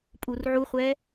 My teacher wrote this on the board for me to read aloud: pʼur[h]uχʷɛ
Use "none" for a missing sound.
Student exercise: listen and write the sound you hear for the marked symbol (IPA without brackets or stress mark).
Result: ʕ